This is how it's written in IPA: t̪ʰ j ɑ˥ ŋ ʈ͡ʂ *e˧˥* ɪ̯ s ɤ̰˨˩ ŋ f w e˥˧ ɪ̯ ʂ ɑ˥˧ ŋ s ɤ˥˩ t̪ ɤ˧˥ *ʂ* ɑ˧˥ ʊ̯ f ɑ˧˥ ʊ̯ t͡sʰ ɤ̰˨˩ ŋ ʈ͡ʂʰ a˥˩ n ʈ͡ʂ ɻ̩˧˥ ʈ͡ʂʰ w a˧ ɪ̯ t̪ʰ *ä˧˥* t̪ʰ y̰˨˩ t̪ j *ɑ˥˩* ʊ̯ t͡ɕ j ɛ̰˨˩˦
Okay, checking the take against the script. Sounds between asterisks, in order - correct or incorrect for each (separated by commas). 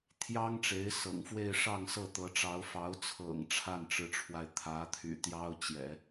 correct, incorrect, correct, incorrect